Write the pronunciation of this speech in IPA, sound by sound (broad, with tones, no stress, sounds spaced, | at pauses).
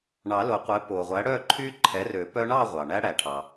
ɳ ɑ˨˩˦ l o˨˩˦ qʷ ɛ˩˥ p o˩ ʁʷ æ˩˥ ɽ œ˥˨ ǃʰ y˦˥ ǃʰ ɛ˩˥ r ø˨˩˦ p œ˦˥ ɳ ɑ˥˨ ʁʷ ɑ˩ ɳ æ˦˥ ɽ æ˩ ʈʰ ɑ˩